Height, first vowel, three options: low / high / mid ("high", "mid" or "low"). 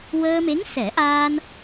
mid